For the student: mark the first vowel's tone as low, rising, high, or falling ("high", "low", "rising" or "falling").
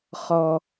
high